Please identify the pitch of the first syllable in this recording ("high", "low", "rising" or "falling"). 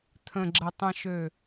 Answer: low